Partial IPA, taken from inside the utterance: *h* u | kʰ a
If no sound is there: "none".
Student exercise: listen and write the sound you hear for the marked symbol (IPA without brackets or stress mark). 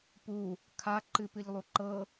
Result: p